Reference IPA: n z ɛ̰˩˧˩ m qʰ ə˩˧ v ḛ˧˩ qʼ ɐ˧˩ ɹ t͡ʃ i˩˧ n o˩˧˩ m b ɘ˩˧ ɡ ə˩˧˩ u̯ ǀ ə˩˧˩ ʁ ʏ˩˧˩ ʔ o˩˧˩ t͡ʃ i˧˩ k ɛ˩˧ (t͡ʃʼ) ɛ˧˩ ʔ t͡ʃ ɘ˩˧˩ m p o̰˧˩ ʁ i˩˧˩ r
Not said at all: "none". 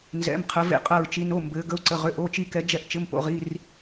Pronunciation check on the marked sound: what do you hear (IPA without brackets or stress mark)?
d͡ʒ